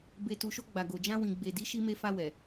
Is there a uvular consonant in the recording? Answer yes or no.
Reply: no